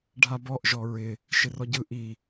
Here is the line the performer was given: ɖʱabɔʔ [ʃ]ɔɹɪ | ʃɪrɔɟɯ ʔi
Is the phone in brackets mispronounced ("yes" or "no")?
yes